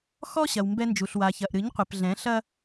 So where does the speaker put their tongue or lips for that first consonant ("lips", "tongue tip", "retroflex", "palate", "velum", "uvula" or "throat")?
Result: velum